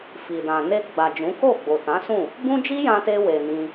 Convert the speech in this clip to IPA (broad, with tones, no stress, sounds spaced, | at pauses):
f i˨ d ã˨ n e˧ ɡ͡b a˨ d͡ʒ ũ˨˦ k o˦˨ ɡ͡b o˨ t ã˨˦ s ũ˦˨ | b ũ˦ d͡ʒ i˦ j ã˧ t e˧ w e˨ n ĩ˧